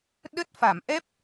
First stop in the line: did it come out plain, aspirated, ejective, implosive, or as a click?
implosive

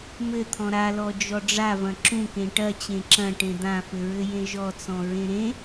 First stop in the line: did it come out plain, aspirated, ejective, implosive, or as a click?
aspirated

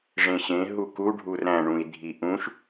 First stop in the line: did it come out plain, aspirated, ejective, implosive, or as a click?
plain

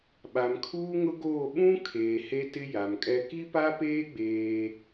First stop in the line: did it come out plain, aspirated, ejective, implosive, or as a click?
implosive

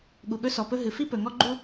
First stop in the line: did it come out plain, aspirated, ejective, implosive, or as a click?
implosive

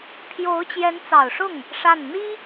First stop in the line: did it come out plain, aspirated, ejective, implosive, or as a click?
aspirated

